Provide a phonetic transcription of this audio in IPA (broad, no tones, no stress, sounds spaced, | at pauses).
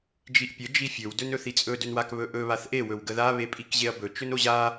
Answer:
d͡ʒ i ʔ pʲ ə d͡ʒ i fʲ ɵ w d ɵ n ɵ θ i t͡sʼ ɵ d ɵ n w a k β ɵ ʔ ɵ β a θ ʔ e w ɵ w ɡ ə ð a β e pʼ i k ʑ e ɐ̯ b ɵ t͡ʃ ɵ n o ʑ a